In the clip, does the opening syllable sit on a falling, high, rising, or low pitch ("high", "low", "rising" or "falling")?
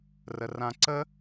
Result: high